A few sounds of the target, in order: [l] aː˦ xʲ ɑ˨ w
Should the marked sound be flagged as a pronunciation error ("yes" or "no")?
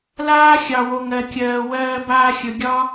no